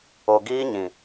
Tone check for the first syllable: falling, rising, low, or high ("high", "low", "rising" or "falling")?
low